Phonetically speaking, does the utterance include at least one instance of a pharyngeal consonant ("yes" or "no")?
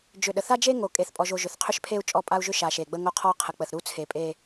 no